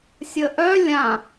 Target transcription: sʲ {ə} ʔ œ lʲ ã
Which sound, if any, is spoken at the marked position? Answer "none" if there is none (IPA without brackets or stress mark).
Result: ə